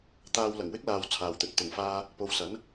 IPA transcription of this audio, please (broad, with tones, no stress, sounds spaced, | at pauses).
t̪ aː˧ w l ɐ˨˩ ŋ w ɪ˥ k̚ l aː˨ w t͡sʰ aː˨ w t̪ ɵ˨ t̚ t̪ ʊ˨˩ ŋ f aː˧ | p o˨˧ w s ɐ˨˥ n